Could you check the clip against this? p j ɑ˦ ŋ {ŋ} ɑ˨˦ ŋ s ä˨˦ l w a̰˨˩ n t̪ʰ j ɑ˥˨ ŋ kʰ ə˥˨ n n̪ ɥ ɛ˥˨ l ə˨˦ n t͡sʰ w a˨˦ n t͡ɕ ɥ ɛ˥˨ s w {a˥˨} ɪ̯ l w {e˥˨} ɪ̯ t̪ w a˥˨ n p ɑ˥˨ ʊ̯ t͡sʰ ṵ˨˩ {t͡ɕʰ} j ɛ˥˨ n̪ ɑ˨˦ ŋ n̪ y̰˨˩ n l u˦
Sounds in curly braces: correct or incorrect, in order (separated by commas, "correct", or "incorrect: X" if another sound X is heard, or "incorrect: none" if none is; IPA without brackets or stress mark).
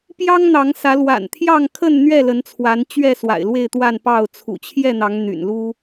incorrect: n̪, incorrect: a̰˨˩, correct, correct